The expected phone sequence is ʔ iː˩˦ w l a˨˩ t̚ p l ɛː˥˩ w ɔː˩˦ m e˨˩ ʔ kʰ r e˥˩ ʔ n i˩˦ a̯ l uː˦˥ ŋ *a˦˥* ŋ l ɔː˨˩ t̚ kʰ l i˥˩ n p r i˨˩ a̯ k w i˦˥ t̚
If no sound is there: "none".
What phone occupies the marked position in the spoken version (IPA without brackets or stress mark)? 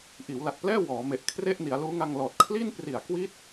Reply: a˧